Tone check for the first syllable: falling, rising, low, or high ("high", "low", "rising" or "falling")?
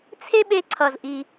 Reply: high